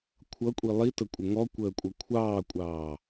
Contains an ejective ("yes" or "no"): yes